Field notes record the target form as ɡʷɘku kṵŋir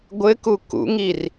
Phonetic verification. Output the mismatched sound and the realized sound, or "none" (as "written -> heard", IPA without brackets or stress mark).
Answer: none